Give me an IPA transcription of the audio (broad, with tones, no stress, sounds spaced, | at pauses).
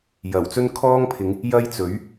j ɐ˨˩ w t͡s ɵ˥ n kʰ ɔː˥ ŋ pʰ ɪ˨˧ ŋ | j ɐ˥ j t͡s ɵ˨˥ ɥ